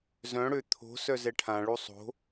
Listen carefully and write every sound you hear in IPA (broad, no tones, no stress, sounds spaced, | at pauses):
z œ̃ ɽ ø t̪ʰ o̤ s œ z ɛ ʈʰ ã ɭ u sˤ o̤